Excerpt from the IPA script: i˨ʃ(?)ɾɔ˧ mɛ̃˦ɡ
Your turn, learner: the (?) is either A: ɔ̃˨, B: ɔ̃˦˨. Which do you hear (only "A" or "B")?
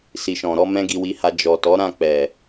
A